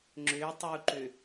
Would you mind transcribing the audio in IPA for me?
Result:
ŋ͡ǁ ʏ tˤ u ǃ ʏ

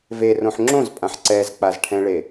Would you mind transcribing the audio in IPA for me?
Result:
v e r õ ħ ŋ͡ǁ õ z pʼ ã ħ ǀ ɛ z k͡p a z ʈʰ ɛ̃ ɭ e

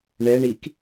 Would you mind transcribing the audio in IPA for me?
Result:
ɳ ɛ ɳ i k

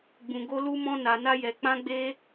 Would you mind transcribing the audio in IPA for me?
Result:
ɡ͡b ũ˧ ɡ o˦ l u˦ m ɔ̃˦ n a˧ n a˦ j ɛ˧ k͡p ã˦ ɡ͡b e˦

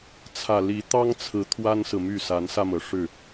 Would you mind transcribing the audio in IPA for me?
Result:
t͡sʰ ä˨˩ l i˨˦ t̪ ɑ˦ ŋ t͡sʰ ɹ̩˨˦ t̪ʰ w a˦ n s ɹ̩˨ m y˥˨ s a˨˦ n s ä˧ m ɤ˩ ʂ ɻ̩˥˨

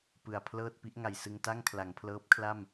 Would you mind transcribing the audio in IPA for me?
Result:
p ɯ˨˩ a̯ pʰ l ɤː˥˩ t̚ p i˦˥ ʔ ŋ a˨˩ j s ɯ˧ ŋ t a˥˩ ŋ kʰ l a˩˦ ŋ pʰ l ɤː˦˥ p̚ kʰ l a˥˩ m

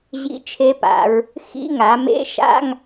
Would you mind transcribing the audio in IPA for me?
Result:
ʑ ḭ˧˥˧ t͡ʃʰ e˧˥ p a̰˩˧ ɹ | x ḭ˧˥˧ ŋ a˩˧ m ḛ˧˥˧ ʃ a̰˧˥˧ ŋ

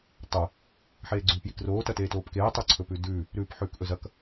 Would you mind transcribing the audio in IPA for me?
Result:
tˤ o | ħ eː ɡ͡ǀ ʉː p j i k r oː t ɐ t eː t oː p k eː tˤ ɵ ǀʰ ɵ p ʉ d ʉː | ɾ ʉː p ħ ʉː k ʔ ɵ z ɐ k

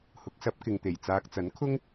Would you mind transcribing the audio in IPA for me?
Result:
h ʊ˨˥ k̚ s ɐ˨˥ p̚ k ɪ˨ ŋ t̪ e˨˩ j t͡s aː˨ k̚ t͡s ɐ˨˥ n kʰ ʊ˥ ŋ

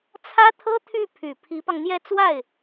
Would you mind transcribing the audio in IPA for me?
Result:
t͡sʰ ä˥ t̪ʰ ɤ˥ t̪ʰ y˥˩ pʰ y˨˩ pʰ i˧˥ p ɑ˧ ŋ n̪ j ɛ˥˧ t͡s w a˥˩ ɪ̯

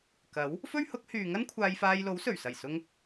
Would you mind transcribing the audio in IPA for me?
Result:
k ɐ˨˥ w | f ɵ˥ ɥ h ʊ˨˥ k̚ h yː˨ ŋ ɐ˥ n kʷʰ aː˧ j f aː˧ j l o˨˥ w s ɵ˨˩ ɥ s ɐ˨˩ j s ʊ˧ ŋ

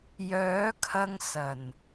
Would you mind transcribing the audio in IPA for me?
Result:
j œː˨˥ kʰ ɐ˧ ŋ s ɐ˨˩ n

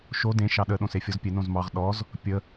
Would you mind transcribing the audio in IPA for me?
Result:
ʃ o d ẽ ʃ ɑ ɗ ə ɗ õ s e fʲ ɔ z pʲ e n õ z m ɑ ʁ ɗ ɔ z | pʲ ə

